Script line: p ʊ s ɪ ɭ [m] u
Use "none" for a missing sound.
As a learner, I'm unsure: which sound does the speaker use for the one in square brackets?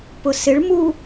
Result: m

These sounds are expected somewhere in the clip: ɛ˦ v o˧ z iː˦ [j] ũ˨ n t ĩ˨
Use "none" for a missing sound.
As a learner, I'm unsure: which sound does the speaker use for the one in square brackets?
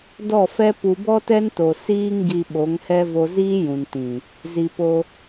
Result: j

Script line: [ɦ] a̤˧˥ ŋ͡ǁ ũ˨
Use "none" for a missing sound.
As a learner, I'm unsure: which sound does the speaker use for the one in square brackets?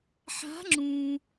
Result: ħ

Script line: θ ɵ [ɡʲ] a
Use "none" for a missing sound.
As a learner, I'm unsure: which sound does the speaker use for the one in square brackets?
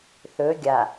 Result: ɡʲ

